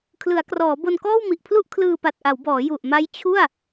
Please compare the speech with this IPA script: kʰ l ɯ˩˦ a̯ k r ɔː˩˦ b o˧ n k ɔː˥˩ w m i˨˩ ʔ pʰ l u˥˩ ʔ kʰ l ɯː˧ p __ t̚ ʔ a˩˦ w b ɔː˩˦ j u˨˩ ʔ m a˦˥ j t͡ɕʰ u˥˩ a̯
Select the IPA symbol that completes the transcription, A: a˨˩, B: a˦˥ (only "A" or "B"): A